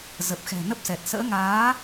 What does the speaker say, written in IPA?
zə˨˩p̚xɛ̤˨˩ nə˦˥p̚sɛ˨˩t̚ sə̰ː˧˥ŋaː˨˦

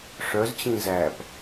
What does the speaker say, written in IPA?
ʂœzt͡ɕĩ zæp

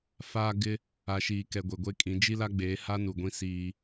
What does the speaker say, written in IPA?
faː˦ ɡɪ˦ | a˨ʃiː˨kɛ˨ ɡʷe˨ɡʷe˦kʼĩ˨˦ d͡ʒi˦la˦ɡ͡beː˨˦ha˦ nu˨ɡʷĩ˦ siː˦

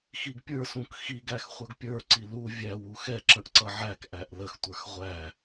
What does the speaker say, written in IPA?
xiɡpʲə˞sũk xiɡæx χʷʌɡpʲə˞ǀi lu vʲæwu xɛǁə̃ʔ ǀʌʕækʔæʔ ləxtʷə˞x ʁʷæ

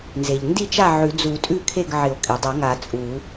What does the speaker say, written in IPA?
nze˩ʎ ndi˥˨t͡ʃa˥˨ ʕʉ˨˩˦d͡zu˨˩˦ tʼʉ˥˨kʰe˥˨ɡʕɪ˨˩˦o̯ kʼi˩ dˤa˨˩˦ŋa˨˩˦ t͡sʼu˨˩˦

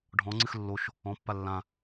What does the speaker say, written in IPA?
ɖʱɔ̃ŋ͡ǀɨx lːoʃ | ɔ̃pːa lːã

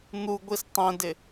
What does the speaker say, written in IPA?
n̪u ɡʷistˤɛ̃dɪ

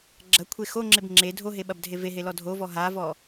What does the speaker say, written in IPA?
ɡ͡ǁɐkʷʰe xoŋ͡ǁeb ŋ͡ǁe dʱoɦeɓɐbdʱe veɦelɔ dʱovɔ ɦavɔ

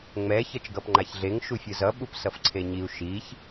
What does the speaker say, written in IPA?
ŋ͡mɛ çʌt͡ʃɡʌpŋ͡ǃaçɮeŋ ʃufʲɯzʌ ɓupsʌfǀʰeɲiu̯ ʃiç

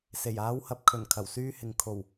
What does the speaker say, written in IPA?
se˨˩jaː˨˧whɐ˨p̚ kʰɵ˨˩n kʰɐ˨˩wsyː˧hɪ˨ŋ kʰo˨˩w

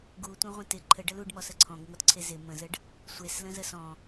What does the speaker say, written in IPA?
ɡutʷə̃ʁʷə̃ tɪ ǃʰəɖəl uɖmɔsə ǀʰɔ̃ɡŋɔtǀʰe zɪ mə̃zəɖ | sʷeslə̃zə sɔ̃

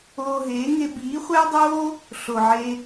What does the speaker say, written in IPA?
oː˧ɦeː˨˦ŋe˧ biː˨˦χʷæ˦dˤoː˦ | ɬo˨ʕe˧

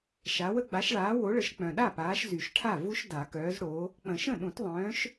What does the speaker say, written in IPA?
ʃa˨˦wə˦ ɡ͡ba˨˦ʃɭaː˨˦wo˨˦ɭə˨˦ʃ k͡pœ̃˨ɗa˥˩paː˨˦ʃ zy˨˩˦ʃʈʰa˥˩ vu˦ʃ da˨˩˦kœː˨˦zɽo˨˦ | k͡pə̃˨˩˦ʃə̃˥˩ ɗũ˨˩˦tðˤœ̃ː˨˦ʃ

